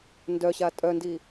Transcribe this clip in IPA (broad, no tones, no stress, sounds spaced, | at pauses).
n d œ ɕ a tʼ œ n d i